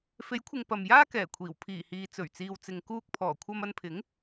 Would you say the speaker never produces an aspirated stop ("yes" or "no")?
no